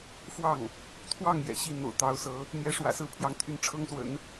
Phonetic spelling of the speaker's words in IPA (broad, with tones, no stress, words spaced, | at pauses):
fwɑ˥˩ŋ | t̪ʰwɑ˥˩ŋ jɛ̰˨˩ɕi˥˩ n̪o̰˨˩ʊ̯t̪ɑ˧˥ʊ̯sɤ˧˥ | n̪jɛ˧˥ʂwä̰˨˩sɹ̩˥˩pʰjɑ˧˥ŋ t̪ʰy˥˩nʈ͡ʂʰɤ˥ŋswə̰˨˩˦n